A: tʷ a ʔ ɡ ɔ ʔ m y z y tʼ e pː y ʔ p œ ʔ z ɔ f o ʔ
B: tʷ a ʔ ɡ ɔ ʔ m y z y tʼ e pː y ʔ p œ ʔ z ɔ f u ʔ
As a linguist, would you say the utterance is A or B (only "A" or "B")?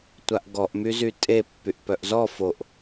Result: A